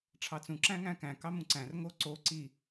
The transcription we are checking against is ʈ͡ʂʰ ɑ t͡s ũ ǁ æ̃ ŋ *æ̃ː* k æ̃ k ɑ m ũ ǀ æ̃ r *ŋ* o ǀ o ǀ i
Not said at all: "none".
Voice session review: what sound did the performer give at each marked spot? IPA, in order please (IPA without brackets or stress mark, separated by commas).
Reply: æ̃, ŋ